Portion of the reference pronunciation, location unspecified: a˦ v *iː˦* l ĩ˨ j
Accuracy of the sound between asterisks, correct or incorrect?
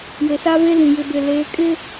incorrect